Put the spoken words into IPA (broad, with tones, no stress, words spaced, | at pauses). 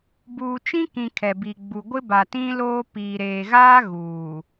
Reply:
buː˨t͡ʃĩ˦kĩ˨ kʰɛ˨bi˨ɡ͡bu˨ ɡʷɪ˦ba˨tĩ˦loː˦ piː˨ɾeː˨ɣaː˦ ɣuː˨